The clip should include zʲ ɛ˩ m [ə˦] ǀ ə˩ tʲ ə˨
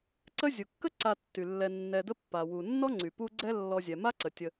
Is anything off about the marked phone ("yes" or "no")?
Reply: yes